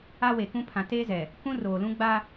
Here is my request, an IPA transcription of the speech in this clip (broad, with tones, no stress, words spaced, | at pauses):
a˦we˨kũ˦ pʰã˨ teː˦zɛ˨ | kũ˦roː˨lũ˦ ɡ͡ba˦